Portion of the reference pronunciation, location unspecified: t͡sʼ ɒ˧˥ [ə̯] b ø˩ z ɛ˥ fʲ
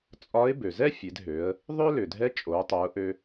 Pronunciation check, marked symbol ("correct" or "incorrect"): incorrect